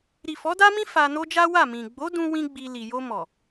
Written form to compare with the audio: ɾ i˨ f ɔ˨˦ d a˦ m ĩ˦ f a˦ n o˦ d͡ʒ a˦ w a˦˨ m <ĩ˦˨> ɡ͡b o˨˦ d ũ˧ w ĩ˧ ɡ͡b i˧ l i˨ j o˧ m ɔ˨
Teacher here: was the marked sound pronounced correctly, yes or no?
no